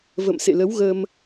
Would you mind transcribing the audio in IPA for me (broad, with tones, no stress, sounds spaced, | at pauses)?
v ə̰˧˨ m s ḛ˧˨ l ə˨˦ w ɣ ə˧ m